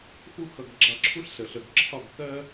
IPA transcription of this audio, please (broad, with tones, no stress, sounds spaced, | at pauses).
x u˥ x ʌ˧ ɡ ɡ͡ǁ ɑ˧ ǁʰ u˥ ɬ s ə˩ ɬ ə˩ ɡ ǁʰ ɒ˥˩ ɡ k ɜ˥